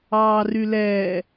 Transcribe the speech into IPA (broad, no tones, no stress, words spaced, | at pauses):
ɑːrylɛː